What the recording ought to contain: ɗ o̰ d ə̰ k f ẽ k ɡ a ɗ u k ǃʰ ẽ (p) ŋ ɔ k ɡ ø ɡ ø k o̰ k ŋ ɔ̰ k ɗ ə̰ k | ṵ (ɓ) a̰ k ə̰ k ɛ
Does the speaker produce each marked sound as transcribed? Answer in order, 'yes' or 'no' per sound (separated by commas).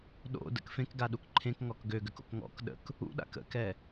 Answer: no, no